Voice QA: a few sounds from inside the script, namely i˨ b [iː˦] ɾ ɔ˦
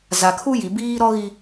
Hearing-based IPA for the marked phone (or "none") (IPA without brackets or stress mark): iː˦